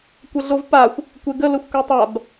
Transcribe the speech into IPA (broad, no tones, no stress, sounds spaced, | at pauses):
kʷ ə ɮ o v p a xʷ | kʷ e ɡ ə l ə xʷ k ɵ tˤ a b